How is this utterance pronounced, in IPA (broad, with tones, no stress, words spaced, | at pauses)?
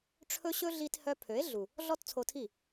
ʈ͡ʂʰɵ˦ɕɵ˦ ɮi˦t hœ˧pʰø˨˦e̯ɮu˨ | ɮɔ˦tt͡sʰo˧tʰi˦˨